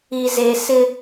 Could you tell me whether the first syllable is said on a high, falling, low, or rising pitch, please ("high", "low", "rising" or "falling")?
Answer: low